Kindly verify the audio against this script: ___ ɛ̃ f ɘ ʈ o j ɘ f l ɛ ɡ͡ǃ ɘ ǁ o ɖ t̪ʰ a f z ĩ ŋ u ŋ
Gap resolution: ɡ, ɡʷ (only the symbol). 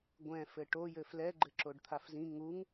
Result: ɡʷ